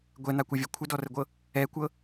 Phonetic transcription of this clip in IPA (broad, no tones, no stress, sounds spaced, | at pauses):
ɡʷ ɛ n̪ a kʷ ɤ vʲ ɤ kʷʰ ə d ɔ r ə ɡʷ ɤ | ɛ kʷ ɤ